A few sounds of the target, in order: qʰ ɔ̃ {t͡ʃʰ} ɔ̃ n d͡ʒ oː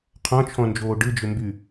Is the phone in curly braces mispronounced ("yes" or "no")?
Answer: no